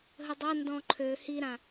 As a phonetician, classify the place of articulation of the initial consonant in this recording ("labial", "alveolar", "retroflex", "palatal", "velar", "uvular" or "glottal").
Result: glottal